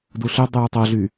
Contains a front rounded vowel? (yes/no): yes